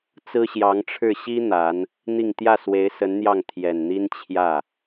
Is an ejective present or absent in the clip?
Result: absent